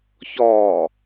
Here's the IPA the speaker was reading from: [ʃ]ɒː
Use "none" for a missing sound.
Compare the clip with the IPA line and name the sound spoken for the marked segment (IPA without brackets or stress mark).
ç